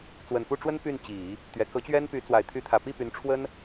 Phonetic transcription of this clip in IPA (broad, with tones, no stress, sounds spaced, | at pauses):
t͡s w ə˨˩ n p u˥˩ ʈ͡ʂ w ə˥ n p y˥˩ n t͡ɕ i˨˩˦ | t̪ ɥ ɛ˧˥ k ɤ˧˥ t͡ɕ ɥ ɛ˥ n p y˧˥ t͡s w a˨˩ ɪ̯ t̪ʰ y˧˥ t̪ʰ ä˨˩ p i˥˩ p y˧˥ n ʈ͡ʂʰ w ə˥ n